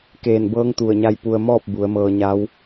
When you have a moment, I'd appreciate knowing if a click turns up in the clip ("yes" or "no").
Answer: no